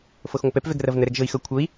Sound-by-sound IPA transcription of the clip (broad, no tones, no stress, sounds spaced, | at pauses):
f ɤ x ŋʷ ɤ p ɛ p v ɛ ɡ r ɐ v n ə ɾ ɛ ɡ ʒ ɤ i̯ x ɤ kʷʰ ɤ i̯